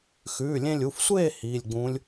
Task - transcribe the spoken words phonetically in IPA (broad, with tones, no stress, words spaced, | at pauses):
xʉː˩˧˩lʲẽ˧lʲu˩˧˩fsʷeː˥˨ hiː˩˧˩lʲɡ͡bũː˧˥lʲ